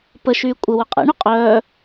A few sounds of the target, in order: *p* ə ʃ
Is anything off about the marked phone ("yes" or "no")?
no